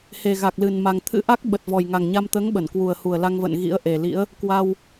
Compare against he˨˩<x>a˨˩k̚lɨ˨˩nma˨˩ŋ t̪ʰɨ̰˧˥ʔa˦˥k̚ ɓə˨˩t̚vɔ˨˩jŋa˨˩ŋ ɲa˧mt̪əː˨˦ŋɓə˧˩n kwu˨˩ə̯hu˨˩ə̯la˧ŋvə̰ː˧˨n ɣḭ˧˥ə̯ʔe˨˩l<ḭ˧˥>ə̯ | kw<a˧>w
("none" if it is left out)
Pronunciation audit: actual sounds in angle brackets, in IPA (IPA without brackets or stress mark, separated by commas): ɣ, ḭ˧˥, a˧